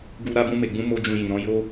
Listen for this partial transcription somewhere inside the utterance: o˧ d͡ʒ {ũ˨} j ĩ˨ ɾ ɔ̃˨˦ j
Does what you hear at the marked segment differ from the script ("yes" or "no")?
yes